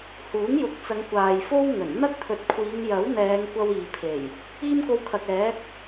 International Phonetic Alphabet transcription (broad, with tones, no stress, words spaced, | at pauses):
huː˨˥ŋjʊ˨˥k̚t͡sɐ˨˧ŋ kʷaː˨jfo˥w ŋɵ˨˩nn̪ɐ˥k̚t̪ʰɵ˨˥t̚ kʷʰiː˨˧ŋjɐ˨˥wn̪ɛː˨˧ŋ kʷɐ˥wiː˨pʰe˨˩j | iː˥mko˧wkʰɐ˨k̚ɛː˨˥k̚